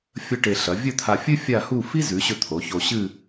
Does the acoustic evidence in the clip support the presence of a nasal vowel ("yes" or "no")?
no